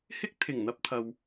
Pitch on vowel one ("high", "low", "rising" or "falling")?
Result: high